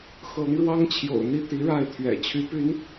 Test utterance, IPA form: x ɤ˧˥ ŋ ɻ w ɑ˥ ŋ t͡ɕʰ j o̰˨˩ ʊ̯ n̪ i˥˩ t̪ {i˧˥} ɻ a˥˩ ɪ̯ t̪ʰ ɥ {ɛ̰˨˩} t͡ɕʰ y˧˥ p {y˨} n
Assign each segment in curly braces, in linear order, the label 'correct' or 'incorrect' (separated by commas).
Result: correct, correct, incorrect